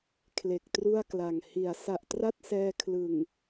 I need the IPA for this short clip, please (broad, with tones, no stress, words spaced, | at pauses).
kʰle˨˩k̚tru˥˩a̯kla˨˩ŋ hi˩˦a̯sa˨˩ʔtra˥˩t̚sɛː˧ kʰlɯ˨˩ŋ